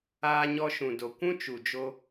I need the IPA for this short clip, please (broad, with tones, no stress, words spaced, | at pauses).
aː˧ɲɔ˧ʃũ˨ do˨kʷũ˦ t͡ʃu˨d͡ʒo˧